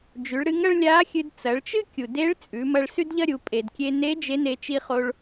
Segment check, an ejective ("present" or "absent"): present